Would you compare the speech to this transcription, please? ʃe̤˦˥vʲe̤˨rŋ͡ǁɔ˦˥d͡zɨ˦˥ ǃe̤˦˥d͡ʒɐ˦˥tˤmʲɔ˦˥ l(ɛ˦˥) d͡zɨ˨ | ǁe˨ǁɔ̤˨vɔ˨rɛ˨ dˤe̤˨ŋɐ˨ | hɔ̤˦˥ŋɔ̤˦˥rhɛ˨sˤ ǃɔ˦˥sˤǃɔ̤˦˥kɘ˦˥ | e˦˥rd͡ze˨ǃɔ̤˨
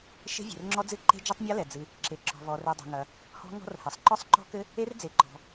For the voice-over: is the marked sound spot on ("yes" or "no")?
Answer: no